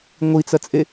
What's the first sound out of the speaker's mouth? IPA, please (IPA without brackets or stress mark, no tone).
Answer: ŋʷ